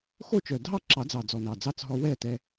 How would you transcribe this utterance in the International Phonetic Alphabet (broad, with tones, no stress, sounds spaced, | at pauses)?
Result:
x o˥˨ t͡ʃ œ˨˩ dʱ ɑ˥˨ ǁ ɑ˨˩˦ d͡z ɑ˨˩ d͡z ɔ˨˩ n ɑ˨˩ d͡z ɑ˧˥˧ t͡s ɦ ɔ˧ w ɛ˥˨ t ɛ˧